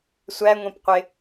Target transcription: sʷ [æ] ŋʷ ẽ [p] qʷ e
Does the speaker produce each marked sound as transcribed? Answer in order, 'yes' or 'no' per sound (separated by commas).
yes, yes